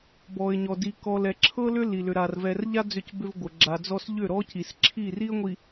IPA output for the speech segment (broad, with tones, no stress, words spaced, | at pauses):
bɔ˨ɪ̯ɲɔ˨di˨ kɔ˨lɛ˨ǁʰɤ˦ lʏ˦ li˨lʏ˨ɾa˨r vɛ˨rʎa˦ d͡zʏ˦˨cbʏ˦vɡʷɤ˨ ɡ͡ǁa˨ d͡zɔ˦s ʎʏ˦˨ɾɔ˦ci˨s ǁʰi˦˨ri˦ə̯ŋʷi˨